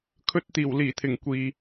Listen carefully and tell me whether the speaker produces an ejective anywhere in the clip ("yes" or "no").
no